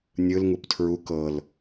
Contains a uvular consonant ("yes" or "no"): no